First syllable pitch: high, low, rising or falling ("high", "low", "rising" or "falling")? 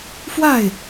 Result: falling